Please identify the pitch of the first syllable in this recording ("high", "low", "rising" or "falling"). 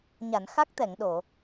low